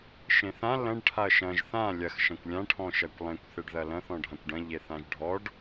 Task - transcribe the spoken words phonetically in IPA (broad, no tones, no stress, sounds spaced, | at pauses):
ʃ ẽ θ ã l ɐ̃ ɖ ʈʰ a ɐ̯ ʃ ɐ̃ ʒ θ ã lʲ ɐ x ʃ ɐ̃ kʷ lʲ ã ʈʰ ɔ̃ ʃ ɐ kʷ lˠ ẽ kʷ θ e ɖ ð ɐ l ɐ̃ θ ɔ̃ ɖʱ ã kʷ ɖ ɐ̃ ʎ e θ ã ʒ ɖʱ ɔ ɖ